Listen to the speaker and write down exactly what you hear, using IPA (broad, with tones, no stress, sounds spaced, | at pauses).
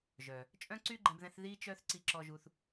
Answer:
ʒ œ˩ | t͡ʃʼ œ̃˥ ǀ y˥ ɡ͡ǃ ɛ̃˧ b ð ɛ̃˧ θ ð i˧ t͡ʃ œ˧ θ ǀ i˧ ǁ ɔ˧ ʒ u˧ θ